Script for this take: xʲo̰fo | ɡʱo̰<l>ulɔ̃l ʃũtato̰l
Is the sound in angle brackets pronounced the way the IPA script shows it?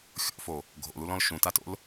yes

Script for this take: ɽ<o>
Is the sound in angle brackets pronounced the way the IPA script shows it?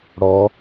no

